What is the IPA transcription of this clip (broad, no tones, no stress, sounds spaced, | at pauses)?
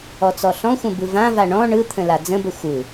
ɔ t͡s ɔ ɬ ɔ̃ xʷ ə̃ b ɯ v ã v a ɳ ɔ̃ ɳ ɯ t̪ʰ ə̃ l a d͡z ə̃ b ə xʷ ɯ